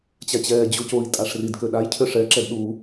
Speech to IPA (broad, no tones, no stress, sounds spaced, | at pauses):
t͡ɕ a t͡ɕ ɛː d͡ʑ u c o i̯ tʼ a ʂ r i d k ø ɗ a j cʰ ø ʂ ɛ ǁ ɛ d ɗ u